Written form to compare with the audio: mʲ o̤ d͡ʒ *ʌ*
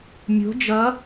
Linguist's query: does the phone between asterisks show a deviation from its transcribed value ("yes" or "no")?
no